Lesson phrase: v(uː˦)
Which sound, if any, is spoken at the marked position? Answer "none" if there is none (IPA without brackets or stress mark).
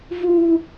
u˦